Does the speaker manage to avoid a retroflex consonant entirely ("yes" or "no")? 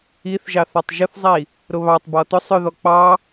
yes